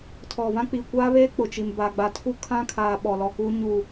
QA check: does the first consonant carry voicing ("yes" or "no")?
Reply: no